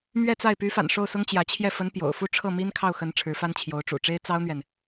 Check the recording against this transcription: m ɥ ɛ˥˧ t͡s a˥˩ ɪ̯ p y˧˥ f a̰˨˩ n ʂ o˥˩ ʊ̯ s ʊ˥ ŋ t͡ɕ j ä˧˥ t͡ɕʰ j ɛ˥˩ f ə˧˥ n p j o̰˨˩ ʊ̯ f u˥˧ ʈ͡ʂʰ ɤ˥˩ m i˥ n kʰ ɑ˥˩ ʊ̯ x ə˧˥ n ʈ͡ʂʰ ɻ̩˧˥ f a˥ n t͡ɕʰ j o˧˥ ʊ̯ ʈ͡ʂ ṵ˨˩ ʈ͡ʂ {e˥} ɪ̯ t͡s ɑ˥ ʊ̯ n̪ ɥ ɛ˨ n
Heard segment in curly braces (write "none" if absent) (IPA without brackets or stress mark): e˥